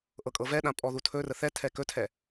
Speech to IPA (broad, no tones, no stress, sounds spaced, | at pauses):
ʔ ɤ kʼ ɤ v ɛ ɗ ã pʼ ɔ ð u tʰ ɵ r ə θ ɛ tʰ ɛ k ɵ tʰ ɛ